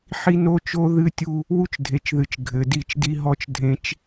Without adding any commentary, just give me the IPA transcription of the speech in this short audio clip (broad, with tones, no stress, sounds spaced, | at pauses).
ħ i˦ n o˦ t͡ʃ o˦ ð ɨ˦ tʲ u˦ | w u˦ t͡ʃ dʱ e˨ t͡ʃ ð ɨ˨ t͡ʃ ɡʱ ɘ˨ d i˦˨ t͡ʃ d i˦ ɦ ɔ˦ t͡ʃ dʱ ẽ˦ t͡ʃ